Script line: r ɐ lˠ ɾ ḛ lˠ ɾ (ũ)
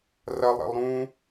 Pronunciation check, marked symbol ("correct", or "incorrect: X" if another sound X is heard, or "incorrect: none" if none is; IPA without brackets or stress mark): correct